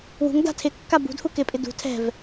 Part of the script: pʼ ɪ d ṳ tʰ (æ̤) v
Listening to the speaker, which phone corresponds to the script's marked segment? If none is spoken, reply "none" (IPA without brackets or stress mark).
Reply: ɛ̤